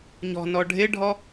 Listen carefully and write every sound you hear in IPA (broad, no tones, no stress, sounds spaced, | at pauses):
ɲ ɔ̤ n ɔ ɖʱ ɪ ɖʱ ɔ